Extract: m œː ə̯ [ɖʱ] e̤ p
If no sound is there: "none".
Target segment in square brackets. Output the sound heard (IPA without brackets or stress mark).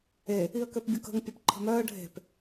ɖʱ